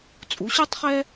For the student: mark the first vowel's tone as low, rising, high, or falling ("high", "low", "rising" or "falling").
rising